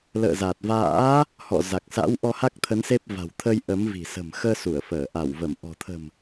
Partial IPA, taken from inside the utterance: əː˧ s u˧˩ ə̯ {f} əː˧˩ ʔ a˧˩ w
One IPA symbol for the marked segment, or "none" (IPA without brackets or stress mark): f